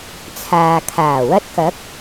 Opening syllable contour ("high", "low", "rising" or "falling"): low